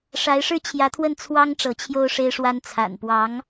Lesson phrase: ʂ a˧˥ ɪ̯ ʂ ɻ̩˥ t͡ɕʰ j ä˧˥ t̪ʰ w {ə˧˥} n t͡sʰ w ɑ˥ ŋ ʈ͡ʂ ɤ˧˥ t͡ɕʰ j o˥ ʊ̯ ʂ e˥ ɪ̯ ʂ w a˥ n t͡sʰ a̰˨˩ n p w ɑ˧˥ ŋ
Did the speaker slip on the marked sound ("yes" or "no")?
yes